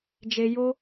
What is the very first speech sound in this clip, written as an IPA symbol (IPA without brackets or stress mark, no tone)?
d͡ʒ